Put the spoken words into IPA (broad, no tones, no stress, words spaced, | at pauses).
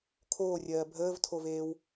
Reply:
kʰoːrʲɜː bʱəːvtʰoveːw